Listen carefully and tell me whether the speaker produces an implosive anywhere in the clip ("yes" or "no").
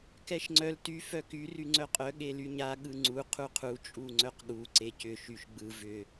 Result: yes